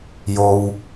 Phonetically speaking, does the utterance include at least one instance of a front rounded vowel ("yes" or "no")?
no